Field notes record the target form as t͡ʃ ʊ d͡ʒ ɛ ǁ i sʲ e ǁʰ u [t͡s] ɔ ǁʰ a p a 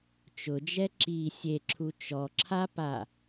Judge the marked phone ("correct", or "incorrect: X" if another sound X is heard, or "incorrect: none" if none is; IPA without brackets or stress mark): incorrect: t͡ʃ